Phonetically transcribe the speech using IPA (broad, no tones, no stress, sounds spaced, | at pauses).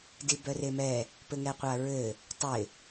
d i b œ r e m ɛ | p ɘ ŋ ɛ qʷ a ɹ ɘ | tˤ ɪ